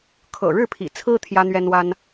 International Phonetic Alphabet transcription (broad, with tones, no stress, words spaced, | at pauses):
kʰɤ̰˨˩ɻɻ̩˥˩pʰḭ˨˩ t͡sʰɹ̩˥ t̪ʰjä˥n̪ɥɛ˥nwa˥n